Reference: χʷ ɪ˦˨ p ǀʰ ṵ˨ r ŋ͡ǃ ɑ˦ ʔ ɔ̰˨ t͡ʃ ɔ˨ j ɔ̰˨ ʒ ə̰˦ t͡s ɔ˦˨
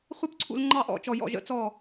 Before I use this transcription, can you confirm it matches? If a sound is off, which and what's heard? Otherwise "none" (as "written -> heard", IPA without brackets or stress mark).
r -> l